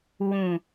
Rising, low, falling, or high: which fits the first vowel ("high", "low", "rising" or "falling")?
low